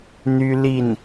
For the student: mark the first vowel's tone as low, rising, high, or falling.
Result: high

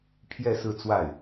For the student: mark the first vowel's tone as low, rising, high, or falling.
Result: falling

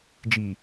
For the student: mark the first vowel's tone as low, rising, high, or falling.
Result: low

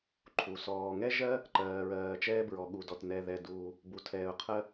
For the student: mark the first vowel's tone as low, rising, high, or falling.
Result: low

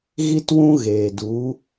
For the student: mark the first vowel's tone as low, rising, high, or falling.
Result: high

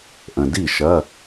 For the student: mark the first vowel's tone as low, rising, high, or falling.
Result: low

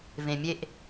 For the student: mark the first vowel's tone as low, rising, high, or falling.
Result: low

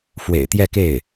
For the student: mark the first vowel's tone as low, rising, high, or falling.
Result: low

